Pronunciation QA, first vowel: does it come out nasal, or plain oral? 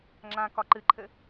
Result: nasal